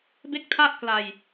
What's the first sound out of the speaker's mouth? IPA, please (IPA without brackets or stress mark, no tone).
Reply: b